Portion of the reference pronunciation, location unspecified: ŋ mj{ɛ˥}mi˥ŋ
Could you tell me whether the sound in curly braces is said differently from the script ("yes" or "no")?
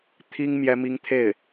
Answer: no